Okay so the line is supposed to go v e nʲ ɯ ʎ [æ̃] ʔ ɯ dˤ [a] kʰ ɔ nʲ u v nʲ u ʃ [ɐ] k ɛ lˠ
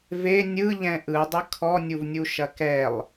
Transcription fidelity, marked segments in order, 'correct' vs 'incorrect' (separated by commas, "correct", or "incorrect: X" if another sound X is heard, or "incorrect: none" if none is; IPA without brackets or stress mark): incorrect: ɛ̃, incorrect: ə, correct